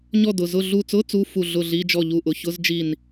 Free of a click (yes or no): yes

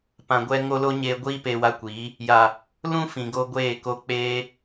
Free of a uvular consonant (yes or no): yes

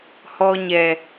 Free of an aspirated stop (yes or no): yes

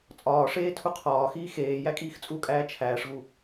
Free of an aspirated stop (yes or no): no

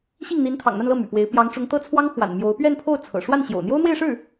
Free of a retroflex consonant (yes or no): no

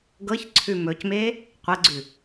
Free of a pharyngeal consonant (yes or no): yes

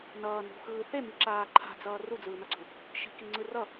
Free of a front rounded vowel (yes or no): yes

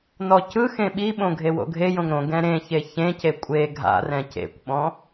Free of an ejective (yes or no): no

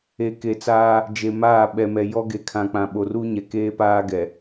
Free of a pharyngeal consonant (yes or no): yes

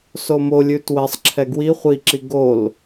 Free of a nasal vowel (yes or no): yes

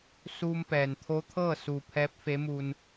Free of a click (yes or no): yes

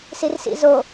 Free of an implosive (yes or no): yes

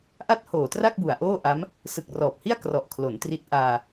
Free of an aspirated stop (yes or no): no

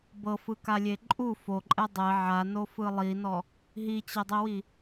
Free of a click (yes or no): no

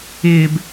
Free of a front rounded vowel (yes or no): yes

